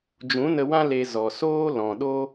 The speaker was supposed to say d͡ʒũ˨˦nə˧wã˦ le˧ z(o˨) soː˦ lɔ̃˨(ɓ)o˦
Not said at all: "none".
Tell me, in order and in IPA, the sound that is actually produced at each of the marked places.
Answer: ɔ˨, ɗ

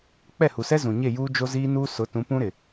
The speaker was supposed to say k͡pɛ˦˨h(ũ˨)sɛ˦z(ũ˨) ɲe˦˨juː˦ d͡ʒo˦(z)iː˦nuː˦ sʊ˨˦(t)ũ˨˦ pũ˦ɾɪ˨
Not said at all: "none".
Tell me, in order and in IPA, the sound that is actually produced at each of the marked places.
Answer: u˨, ũ˨, z, t

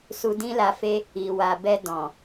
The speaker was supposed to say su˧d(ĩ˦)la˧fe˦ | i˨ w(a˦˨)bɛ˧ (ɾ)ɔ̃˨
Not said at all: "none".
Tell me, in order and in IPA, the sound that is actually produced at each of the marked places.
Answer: ĩ˦, a˨, d

